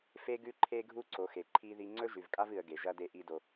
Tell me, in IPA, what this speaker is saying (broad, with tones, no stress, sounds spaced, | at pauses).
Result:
f e˦ ɡ ʉ˦ ǃʰ e˦ ɡʱ u˦ ǀ o˨ x e˨ ǃʰ i˦ ð i˦ ŋ͡ǀ ɵ˦ ʒ ʉ˨ v kʼ a˦ v ɨ˨ ə̯ ɡ e˨ ʒ ɐ˦ d e˦ ʔ i˦ d o˦